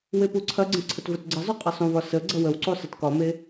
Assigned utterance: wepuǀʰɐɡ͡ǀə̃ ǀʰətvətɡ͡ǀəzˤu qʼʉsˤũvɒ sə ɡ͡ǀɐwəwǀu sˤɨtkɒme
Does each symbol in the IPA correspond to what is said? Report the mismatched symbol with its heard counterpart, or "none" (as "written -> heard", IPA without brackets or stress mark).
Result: ʉ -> ɨ